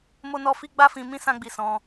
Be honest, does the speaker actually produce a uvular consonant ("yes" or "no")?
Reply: no